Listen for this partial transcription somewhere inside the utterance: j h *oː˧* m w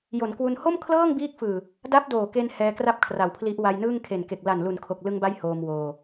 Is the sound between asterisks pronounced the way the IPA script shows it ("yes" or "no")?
yes